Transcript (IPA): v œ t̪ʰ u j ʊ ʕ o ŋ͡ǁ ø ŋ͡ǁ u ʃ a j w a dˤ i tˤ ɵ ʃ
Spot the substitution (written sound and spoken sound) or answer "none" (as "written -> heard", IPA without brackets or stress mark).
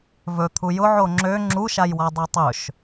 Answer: œ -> ɵ